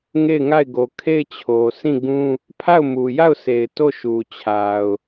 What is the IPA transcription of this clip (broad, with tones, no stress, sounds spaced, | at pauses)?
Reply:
ŋ e˦˨ ɪ̯ ŋ a˦˨ ɪ̯ ɡ o˨ kʰ e˦˨ ɪ̯ t͡ɕʰ o˨ s ĩ˦˨ ɡ ũ˦ | pʰ a˦˨ ʊ̯ m u˨ j a˦˨ ʊ̯ s e˨ ɪ̯ t o˦˨ ʃ u˨ t͡ɕʰ a˨ ʊ̯